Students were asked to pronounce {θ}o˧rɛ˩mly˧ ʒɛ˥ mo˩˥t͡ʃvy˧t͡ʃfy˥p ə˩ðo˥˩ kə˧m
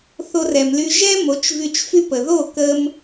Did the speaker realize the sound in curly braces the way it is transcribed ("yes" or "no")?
yes